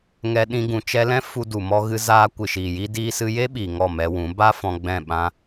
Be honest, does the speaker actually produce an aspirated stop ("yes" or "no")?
no